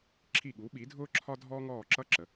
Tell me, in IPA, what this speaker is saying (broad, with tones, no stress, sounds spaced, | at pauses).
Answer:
ǁʰ i˦˨ ɠ u˨˥ ɓ i˨˥ dʱ ʊː˥ ǁʰ ɒ˥ dʱ ɔː˥ ŋ ɔː˦˨ ǁ ʌ˥ ǁ ə˩˧